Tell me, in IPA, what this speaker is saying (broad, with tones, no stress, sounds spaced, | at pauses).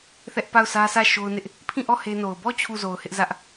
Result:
θ ɛ˦ ʔ p a˦˨ ʊ̯ s ä˦ s ä˦˨ ʃ o˦ ʊ̯ n ɪ˦ ʔ | pʰ ĩ˦˨ ʔ ɔ˦˨ h e˦ n o˨ ʊ̯ b ɔ˦˨ t͡ɕʰ u˦˨ z o˨ ʊ̯ h ɪ˦ ʔ z ä˦ ʔ